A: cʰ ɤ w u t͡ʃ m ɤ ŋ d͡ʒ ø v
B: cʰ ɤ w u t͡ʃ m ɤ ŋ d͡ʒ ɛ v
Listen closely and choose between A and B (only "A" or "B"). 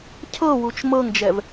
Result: B